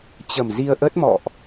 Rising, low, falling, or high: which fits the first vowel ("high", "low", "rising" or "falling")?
low